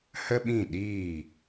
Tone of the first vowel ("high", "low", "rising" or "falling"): high